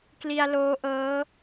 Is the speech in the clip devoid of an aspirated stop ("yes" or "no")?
yes